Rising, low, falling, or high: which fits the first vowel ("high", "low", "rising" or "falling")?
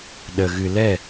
low